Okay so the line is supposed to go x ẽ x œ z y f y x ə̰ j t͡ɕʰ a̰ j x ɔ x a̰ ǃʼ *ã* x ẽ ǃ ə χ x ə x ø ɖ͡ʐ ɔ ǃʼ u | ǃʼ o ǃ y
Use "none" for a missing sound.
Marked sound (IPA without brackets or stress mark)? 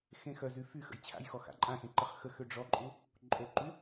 ã